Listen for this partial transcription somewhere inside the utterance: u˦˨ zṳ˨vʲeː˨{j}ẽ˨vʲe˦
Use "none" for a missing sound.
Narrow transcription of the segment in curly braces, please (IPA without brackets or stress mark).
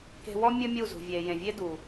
j